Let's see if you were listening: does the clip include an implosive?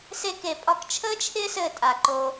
no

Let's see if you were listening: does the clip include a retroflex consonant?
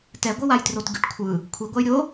yes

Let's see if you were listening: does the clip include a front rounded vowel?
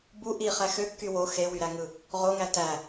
yes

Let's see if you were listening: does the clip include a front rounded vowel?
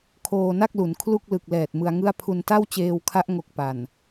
no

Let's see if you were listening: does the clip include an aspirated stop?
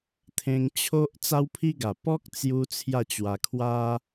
yes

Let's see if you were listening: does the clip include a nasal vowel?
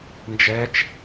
no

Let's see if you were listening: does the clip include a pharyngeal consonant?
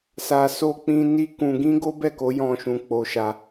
no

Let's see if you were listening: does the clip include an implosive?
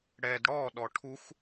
yes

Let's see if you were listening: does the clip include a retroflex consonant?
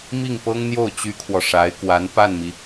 yes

